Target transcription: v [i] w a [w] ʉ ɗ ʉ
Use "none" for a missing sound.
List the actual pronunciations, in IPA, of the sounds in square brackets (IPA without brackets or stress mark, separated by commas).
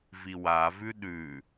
i, v